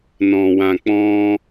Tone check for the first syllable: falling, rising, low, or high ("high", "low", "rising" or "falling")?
low